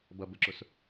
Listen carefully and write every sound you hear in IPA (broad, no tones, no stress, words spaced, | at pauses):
bʌbəǁʊs